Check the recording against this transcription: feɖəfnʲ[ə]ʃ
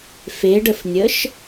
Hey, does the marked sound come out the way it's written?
yes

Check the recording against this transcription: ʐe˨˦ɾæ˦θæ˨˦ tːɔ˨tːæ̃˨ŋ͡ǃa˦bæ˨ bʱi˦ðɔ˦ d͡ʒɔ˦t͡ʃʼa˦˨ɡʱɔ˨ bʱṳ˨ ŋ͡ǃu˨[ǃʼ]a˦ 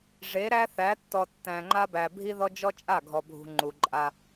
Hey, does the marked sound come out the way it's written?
yes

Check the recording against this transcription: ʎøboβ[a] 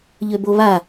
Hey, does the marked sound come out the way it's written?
yes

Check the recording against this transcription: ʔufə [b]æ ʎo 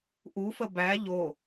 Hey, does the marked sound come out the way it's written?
yes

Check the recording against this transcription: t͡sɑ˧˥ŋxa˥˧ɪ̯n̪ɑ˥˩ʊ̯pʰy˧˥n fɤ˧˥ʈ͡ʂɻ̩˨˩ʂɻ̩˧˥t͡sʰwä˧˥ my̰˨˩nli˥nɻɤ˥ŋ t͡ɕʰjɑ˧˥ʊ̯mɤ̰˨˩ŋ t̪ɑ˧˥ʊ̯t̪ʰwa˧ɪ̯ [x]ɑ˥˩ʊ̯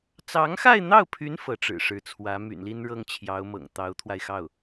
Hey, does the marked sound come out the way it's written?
yes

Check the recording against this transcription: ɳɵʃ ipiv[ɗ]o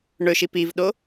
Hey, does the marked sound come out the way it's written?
yes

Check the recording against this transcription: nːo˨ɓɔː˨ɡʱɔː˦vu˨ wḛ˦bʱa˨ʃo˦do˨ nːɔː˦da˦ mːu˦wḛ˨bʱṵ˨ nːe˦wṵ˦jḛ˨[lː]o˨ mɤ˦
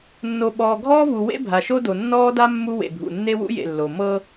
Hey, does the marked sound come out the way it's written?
yes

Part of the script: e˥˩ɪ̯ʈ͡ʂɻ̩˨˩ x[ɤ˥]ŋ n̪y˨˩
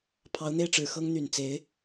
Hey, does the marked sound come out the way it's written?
yes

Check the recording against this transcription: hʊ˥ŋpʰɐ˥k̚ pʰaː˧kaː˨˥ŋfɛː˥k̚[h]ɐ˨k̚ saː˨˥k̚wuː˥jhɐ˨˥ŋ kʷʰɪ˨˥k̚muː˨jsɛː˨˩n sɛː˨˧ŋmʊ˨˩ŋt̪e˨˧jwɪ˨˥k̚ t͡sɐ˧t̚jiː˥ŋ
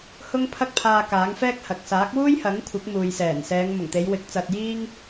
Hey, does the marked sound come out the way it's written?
yes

